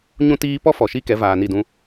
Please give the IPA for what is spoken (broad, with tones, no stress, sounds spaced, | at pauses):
ɲ ũ˦ t iː˦ p ɔ˦ f ɔ˨ ʃ i˦ k ɛ˨˦ v aː˨ n i˦˨ d ũ˦